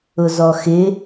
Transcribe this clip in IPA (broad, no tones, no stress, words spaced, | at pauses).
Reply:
ʊzɔxɪ